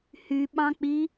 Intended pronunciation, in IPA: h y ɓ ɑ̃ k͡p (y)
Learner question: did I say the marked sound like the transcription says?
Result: no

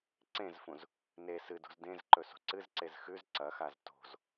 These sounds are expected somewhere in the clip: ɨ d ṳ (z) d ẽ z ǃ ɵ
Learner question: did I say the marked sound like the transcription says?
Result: yes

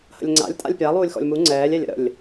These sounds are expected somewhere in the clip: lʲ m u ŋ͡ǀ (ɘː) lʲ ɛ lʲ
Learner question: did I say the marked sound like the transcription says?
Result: no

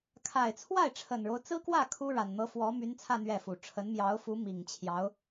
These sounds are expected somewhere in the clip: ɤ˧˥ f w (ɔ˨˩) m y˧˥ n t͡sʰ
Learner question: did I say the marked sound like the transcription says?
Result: no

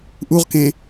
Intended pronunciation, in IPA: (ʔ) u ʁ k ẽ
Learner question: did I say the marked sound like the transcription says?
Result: yes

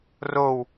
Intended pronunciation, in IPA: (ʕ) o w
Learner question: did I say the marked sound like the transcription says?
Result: no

